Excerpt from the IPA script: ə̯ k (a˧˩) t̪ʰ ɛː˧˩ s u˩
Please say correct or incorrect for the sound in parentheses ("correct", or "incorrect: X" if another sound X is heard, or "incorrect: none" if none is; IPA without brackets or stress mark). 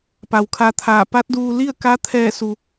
incorrect: a˧˥